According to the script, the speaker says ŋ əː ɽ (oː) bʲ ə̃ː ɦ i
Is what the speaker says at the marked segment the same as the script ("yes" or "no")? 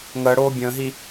yes